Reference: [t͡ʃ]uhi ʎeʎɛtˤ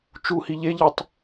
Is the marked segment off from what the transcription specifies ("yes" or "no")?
no